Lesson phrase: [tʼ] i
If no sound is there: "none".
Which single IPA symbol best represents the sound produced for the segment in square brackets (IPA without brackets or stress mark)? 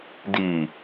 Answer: d